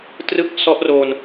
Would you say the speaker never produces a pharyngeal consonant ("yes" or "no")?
yes